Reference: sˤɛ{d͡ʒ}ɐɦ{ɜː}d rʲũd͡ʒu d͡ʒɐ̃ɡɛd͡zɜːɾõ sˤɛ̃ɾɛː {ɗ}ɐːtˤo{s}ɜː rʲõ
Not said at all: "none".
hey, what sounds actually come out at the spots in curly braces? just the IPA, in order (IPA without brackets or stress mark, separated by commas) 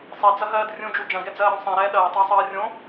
d͡z, ɜː, ɗ, sˤ